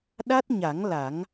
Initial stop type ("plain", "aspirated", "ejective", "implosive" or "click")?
implosive